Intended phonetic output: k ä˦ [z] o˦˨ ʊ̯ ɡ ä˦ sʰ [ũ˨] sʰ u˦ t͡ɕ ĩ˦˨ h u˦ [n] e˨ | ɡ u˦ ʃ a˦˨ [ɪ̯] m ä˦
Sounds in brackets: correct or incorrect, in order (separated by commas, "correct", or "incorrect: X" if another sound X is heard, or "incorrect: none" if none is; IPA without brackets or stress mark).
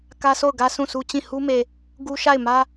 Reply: incorrect: s, incorrect: ũ˦˨, incorrect: m, correct